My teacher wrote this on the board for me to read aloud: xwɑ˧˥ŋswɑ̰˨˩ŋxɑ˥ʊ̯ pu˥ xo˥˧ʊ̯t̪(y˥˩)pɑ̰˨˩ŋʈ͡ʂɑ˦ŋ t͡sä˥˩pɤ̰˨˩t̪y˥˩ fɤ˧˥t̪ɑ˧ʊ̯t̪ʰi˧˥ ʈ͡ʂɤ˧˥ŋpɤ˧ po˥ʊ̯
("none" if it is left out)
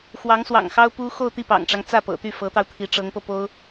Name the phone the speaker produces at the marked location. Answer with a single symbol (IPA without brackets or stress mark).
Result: i˥˩